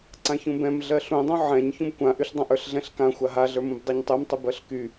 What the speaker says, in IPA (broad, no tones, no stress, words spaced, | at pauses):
ǀãçũbɛ̃m ɮɜɬũdˤũ ʕɛ̃ɲ çũbkʷãʔyɬdˤãʔ ə˞ɬɮɛ̃ɬkã xʷaɦaɮə˞mũb dˤɛɲtˤymtˤyb ɜɬky